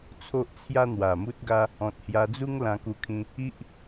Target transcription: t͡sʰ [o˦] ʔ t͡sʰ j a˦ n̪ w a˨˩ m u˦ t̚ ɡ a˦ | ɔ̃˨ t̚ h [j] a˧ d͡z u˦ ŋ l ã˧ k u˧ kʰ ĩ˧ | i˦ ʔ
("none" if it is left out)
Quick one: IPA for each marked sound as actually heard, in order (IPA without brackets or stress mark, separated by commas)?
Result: o˦, j